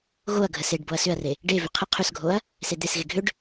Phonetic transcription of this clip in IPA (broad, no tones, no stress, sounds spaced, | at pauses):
ɣ o ɐ̯ ɡʱ ə s e ɖ b o ɐ̯ s ʏ ɐ̯ r e | ɖ e v ʏ qʰ ə qʰ ʏ s ɡʱ o ɐ̯ | s e d̪ e s ɣ e ɡʱ ʏ ɖ